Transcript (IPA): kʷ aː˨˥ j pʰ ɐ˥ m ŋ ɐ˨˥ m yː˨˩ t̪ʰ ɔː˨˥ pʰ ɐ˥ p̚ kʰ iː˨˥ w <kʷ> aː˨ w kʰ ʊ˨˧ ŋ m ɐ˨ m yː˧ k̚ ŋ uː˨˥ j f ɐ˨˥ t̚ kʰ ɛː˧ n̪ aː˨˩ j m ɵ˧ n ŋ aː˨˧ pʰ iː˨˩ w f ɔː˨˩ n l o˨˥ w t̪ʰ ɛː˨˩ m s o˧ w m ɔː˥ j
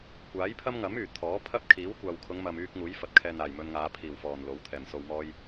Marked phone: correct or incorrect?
correct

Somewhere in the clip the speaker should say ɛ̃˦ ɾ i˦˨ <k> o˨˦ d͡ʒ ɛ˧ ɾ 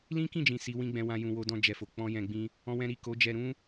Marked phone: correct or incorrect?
correct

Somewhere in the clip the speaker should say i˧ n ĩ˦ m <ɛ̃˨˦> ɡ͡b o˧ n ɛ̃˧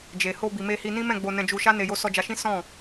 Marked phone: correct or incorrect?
incorrect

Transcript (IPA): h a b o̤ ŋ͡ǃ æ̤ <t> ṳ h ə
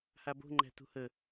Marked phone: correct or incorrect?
correct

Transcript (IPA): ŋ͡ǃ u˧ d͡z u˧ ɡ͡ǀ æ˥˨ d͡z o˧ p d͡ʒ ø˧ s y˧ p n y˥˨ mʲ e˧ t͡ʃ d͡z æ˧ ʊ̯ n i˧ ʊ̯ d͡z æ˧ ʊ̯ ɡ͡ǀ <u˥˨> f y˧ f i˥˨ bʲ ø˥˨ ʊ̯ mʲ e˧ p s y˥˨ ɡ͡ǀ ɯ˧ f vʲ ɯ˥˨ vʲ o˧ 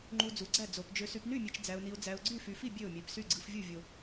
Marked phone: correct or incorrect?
incorrect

